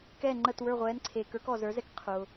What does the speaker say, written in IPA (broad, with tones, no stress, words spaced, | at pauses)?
kɛː˥˩ŋ͡ǃəː˥˩t wə˞˥˩ʁʷɛː˩˥nǀʰeː˩kə˞˩˥k ɔ˩ zə˞˩˥zɛ˥k qʰʊː˩